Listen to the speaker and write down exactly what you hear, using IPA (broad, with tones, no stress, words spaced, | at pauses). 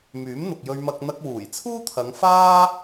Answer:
myː˨˥mn̪ʊ˨k̚jɵ˧ɥmɐ˧k̚ n̪ɐ˧k̚wuː˨˩jt͡sʰuː˥t̪ʰɐ˨˧ŋ faː˥